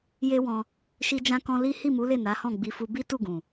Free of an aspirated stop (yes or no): yes